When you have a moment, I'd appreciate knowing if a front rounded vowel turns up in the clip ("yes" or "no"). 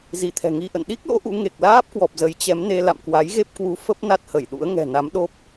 no